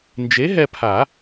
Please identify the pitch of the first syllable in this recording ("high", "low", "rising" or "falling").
rising